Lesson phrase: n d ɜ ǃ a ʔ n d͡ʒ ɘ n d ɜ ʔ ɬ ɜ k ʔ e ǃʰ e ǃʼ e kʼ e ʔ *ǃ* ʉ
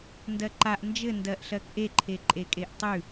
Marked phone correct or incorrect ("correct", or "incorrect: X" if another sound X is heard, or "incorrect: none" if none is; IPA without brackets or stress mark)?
incorrect: tˤ